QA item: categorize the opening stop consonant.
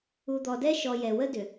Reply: plain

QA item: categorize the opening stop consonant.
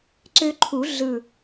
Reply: click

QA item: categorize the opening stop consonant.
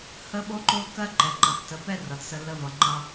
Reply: implosive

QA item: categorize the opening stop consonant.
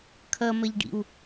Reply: aspirated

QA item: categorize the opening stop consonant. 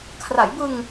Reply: aspirated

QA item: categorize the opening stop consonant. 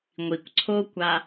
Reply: plain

